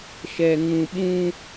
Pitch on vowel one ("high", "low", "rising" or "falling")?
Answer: low